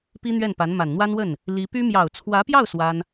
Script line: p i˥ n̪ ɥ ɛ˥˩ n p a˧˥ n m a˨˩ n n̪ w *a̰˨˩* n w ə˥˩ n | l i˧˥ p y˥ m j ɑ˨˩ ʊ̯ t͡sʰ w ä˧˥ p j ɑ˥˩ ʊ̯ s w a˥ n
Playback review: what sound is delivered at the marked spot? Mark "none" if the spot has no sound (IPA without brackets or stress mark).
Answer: a˥